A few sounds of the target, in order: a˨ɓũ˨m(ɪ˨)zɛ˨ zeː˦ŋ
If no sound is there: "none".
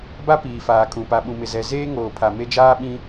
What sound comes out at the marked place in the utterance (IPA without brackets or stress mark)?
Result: ɪ˨